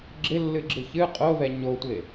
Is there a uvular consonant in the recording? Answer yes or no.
yes